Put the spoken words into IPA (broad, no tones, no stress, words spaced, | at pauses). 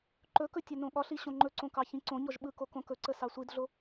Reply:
ǃɵkɵ tʲɵnõɠɒɬi ɕõŋ͡ǃɵǀõ kɑçĩǀõɲɔʒ ɓɯko kõkɵǀə sɑsʷidɮo